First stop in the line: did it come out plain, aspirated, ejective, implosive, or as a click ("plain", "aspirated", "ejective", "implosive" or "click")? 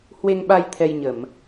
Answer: implosive